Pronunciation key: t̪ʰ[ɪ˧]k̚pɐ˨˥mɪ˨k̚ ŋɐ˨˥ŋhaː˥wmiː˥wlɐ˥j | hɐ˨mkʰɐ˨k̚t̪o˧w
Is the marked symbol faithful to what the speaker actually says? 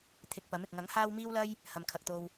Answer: yes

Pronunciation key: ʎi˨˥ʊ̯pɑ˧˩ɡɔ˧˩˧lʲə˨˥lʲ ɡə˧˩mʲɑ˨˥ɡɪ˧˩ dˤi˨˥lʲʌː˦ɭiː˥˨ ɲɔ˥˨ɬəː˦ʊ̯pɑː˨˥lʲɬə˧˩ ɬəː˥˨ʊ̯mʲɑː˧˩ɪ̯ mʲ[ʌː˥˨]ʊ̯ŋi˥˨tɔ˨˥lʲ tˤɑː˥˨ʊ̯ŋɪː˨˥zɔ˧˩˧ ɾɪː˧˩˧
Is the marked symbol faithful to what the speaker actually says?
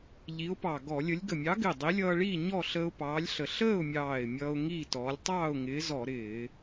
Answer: no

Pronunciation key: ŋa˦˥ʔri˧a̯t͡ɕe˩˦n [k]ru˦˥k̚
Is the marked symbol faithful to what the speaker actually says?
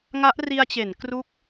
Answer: yes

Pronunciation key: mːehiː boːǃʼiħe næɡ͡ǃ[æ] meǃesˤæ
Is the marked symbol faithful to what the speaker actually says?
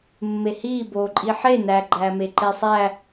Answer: no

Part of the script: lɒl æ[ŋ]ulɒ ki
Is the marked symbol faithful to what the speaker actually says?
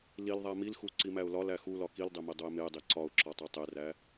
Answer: no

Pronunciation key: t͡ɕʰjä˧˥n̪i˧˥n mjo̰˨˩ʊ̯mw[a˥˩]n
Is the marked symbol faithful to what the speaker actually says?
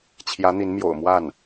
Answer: yes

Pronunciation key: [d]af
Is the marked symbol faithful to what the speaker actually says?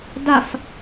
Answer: yes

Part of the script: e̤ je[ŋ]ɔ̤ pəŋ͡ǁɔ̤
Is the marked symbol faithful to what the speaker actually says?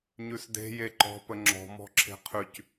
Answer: no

